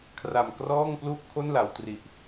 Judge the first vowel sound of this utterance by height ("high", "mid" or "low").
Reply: low